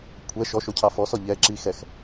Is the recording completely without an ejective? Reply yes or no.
yes